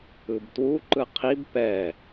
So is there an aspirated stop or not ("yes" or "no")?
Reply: yes